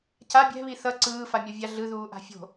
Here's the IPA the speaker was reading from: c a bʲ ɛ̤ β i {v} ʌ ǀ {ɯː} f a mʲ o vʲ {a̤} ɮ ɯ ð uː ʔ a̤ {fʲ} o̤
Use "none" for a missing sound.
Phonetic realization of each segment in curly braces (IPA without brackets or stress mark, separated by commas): θ, ɯː, a, fʲ